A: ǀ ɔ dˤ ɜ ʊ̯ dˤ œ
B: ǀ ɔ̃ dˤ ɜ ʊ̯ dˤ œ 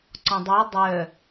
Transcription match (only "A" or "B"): B